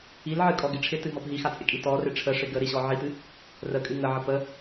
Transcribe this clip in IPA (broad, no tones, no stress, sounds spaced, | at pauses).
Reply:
i l ʕ ɨ kʼ ɔ ɡ ɪ ʈ͡ʂʰ ɪ t ɨ ɦ ɔ p ɦ i x a t͡sʼ ɪ kʼ i t ɔ r ɪ ʈ͡ʂʰ ə ʂ ɪ ɡ ə ɾ i ɕ ɔ ʕ i t ɨ | r ə kʼ ɨ ŋ ə ʕ ə p ə